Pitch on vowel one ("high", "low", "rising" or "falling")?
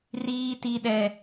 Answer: high